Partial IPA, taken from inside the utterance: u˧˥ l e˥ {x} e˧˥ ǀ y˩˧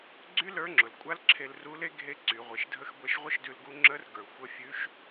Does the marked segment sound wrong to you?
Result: yes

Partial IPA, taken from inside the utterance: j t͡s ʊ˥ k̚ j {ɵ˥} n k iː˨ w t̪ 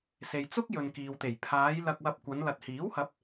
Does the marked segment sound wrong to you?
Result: yes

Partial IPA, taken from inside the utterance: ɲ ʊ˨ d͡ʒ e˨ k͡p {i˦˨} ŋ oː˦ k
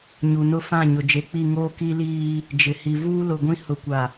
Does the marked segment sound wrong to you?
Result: no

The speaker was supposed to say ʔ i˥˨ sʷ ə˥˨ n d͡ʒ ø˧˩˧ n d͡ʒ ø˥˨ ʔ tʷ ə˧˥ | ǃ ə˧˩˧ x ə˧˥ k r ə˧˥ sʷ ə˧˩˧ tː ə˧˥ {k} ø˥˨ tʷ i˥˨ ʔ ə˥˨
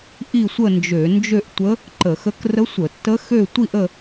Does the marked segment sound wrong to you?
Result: yes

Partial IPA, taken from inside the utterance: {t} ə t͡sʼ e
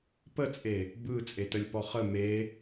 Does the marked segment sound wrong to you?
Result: yes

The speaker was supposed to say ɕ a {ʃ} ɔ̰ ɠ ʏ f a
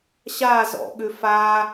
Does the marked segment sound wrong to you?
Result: yes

